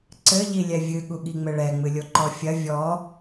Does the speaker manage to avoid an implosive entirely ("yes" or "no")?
no